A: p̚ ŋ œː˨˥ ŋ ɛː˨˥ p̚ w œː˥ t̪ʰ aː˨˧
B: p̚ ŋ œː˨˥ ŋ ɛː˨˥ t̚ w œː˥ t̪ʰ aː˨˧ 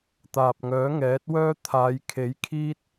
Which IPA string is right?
B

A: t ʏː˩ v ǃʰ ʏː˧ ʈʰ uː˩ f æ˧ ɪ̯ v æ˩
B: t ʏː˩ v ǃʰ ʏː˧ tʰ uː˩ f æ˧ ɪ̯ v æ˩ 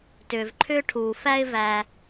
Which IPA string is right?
A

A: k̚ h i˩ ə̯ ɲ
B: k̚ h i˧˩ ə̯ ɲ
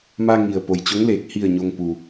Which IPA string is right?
B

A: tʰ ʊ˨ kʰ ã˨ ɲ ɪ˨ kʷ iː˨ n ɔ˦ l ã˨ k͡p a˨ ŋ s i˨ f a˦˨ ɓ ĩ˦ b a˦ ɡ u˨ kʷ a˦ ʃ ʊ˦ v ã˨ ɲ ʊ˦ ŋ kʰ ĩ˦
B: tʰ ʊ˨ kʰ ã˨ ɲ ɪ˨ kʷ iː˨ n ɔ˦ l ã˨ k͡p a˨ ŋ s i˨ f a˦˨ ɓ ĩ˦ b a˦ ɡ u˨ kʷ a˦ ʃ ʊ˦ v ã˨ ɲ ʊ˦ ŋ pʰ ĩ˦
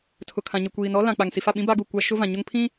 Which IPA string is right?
B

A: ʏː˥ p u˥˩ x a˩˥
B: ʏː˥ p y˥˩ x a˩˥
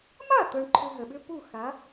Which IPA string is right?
A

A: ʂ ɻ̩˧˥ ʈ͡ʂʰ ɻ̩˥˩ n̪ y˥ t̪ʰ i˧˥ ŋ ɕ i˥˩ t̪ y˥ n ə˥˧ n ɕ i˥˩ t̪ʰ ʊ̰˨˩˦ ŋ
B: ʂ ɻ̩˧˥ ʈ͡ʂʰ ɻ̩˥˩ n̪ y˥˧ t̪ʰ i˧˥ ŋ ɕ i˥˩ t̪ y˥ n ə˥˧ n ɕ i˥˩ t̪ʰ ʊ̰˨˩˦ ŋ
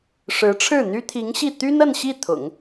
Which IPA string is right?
A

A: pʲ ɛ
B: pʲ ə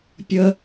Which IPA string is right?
B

